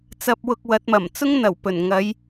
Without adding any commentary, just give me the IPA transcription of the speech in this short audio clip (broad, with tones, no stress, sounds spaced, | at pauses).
t͡s ɐ˧ p̚ w ʊ˧ k̚ w ɐ˨˥ t̚ m ɐ˨˩ m t͡s ʊ˥ ŋ n̪ ɐ˨˩ w p ɵ˨˩ n ŋ ɐ˨˧ j